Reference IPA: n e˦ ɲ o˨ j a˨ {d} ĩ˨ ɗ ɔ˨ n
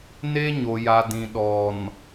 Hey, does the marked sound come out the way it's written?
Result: yes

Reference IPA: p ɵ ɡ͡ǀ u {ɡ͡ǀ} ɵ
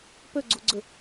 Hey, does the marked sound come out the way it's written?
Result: yes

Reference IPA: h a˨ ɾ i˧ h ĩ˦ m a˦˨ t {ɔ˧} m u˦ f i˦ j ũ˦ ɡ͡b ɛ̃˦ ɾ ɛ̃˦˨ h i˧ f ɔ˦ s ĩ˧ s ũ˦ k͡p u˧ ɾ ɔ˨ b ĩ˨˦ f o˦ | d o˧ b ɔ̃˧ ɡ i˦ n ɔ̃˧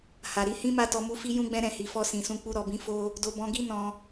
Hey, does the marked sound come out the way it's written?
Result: yes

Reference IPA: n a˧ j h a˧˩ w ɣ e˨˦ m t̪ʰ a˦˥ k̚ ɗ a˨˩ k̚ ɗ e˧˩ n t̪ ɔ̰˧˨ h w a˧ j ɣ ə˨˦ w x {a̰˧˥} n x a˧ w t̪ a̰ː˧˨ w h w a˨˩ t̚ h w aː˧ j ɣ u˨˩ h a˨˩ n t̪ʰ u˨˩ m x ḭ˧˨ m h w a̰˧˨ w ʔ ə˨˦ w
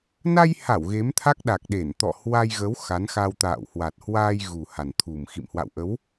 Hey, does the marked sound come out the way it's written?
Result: no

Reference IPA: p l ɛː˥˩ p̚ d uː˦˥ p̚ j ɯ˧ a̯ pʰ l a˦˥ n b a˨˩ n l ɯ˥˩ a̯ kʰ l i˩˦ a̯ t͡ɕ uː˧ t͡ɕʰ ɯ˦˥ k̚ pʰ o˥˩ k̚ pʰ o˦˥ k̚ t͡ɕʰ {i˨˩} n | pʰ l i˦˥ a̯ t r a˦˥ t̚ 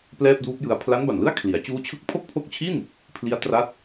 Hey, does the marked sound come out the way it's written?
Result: no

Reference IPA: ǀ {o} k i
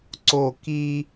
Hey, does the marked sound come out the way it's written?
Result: yes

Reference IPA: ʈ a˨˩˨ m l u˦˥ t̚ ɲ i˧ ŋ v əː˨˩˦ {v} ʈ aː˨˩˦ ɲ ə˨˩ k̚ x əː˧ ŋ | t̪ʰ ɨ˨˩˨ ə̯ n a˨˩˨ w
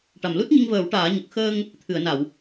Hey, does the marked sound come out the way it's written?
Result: no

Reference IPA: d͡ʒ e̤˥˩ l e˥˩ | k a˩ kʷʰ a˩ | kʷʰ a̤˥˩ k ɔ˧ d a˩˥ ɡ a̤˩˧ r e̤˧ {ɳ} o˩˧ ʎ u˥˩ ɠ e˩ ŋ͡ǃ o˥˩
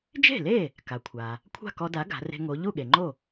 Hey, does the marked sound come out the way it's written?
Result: no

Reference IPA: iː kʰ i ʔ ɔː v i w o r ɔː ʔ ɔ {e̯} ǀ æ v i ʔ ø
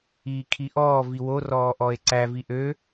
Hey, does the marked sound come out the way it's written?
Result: yes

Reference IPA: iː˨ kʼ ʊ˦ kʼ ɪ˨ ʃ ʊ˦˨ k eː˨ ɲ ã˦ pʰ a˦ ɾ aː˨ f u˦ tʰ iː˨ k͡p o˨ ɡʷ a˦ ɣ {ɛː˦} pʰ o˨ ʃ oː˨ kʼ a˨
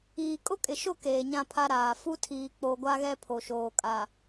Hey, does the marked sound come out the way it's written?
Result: no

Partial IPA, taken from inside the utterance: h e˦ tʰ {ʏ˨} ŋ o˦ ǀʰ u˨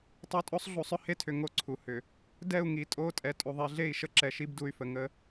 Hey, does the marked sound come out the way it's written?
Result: yes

